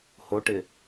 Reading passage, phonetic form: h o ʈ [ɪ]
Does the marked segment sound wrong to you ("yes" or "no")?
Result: no